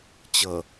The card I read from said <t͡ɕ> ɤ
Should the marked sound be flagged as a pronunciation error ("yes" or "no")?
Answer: no